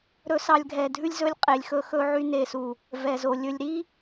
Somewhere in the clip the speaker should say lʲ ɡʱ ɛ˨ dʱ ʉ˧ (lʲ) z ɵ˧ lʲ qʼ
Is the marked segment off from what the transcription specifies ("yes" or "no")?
no